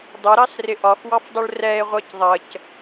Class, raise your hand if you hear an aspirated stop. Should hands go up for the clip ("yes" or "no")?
no